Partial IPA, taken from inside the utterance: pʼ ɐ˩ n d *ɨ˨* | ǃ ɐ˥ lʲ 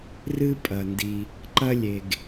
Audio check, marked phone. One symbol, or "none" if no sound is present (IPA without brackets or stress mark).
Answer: i˨